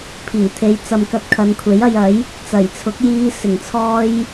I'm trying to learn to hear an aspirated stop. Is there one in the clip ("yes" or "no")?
yes